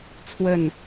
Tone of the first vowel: falling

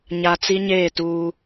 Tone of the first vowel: low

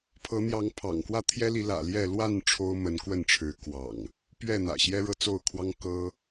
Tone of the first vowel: rising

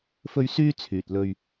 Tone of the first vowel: high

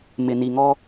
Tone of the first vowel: low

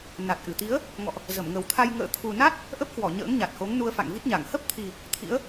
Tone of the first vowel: low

